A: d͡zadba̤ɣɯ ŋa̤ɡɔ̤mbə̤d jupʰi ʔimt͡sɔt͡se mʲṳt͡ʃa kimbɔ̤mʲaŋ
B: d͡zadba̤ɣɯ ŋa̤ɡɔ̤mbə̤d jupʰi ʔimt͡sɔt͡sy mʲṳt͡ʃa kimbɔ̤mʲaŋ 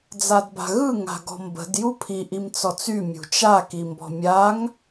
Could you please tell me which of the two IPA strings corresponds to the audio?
B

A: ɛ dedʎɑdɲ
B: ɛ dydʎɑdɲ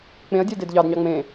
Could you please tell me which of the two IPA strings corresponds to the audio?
A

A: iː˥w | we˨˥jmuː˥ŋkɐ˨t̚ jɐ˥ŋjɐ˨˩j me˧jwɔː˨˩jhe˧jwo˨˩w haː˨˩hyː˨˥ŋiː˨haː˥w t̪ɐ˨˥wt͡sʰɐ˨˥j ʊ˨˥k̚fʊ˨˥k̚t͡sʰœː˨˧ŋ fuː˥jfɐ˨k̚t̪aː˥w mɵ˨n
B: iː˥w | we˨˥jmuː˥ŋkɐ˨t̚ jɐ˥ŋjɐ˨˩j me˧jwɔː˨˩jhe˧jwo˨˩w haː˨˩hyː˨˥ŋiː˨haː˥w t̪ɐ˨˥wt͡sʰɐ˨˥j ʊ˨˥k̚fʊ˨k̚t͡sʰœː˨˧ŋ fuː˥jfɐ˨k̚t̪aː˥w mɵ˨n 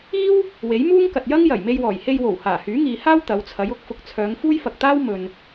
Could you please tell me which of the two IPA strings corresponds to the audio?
A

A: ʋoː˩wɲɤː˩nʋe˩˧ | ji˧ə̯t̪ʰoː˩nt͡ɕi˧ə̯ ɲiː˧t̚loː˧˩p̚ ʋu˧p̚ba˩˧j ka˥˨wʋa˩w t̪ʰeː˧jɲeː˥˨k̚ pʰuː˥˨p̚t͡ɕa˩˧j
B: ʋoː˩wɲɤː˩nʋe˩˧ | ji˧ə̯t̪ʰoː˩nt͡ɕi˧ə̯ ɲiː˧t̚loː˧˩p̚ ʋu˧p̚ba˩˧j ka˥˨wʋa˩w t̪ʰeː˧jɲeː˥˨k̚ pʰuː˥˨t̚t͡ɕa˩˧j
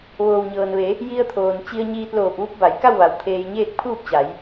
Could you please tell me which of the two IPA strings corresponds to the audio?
A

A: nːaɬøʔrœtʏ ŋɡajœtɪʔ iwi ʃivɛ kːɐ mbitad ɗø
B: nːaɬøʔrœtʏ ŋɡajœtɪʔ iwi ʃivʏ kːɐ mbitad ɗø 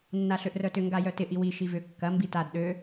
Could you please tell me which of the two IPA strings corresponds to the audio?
B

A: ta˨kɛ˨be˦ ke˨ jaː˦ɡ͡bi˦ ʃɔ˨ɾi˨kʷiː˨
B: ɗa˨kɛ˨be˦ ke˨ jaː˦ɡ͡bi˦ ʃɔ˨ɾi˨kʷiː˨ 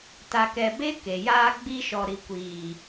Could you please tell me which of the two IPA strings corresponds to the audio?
A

